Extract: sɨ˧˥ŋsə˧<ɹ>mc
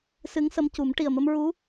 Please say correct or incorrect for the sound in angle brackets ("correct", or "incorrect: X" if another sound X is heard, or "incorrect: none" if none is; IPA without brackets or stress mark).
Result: incorrect: none